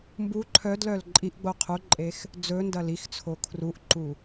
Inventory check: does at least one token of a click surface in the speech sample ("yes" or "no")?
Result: yes